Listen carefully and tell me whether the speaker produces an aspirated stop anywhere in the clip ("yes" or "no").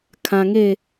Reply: yes